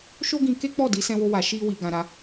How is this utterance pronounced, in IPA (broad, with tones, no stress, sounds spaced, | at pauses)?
ʃ o˦ ɡ ĩ˧ k e˦ k͡p ɔ˦˨ d i˨˦ s ɛ̃˦ w o˦ w a˧ ʃ i˦ w i˧ ɡ ã˧ ɾ a˧